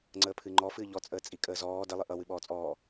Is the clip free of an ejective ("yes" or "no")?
no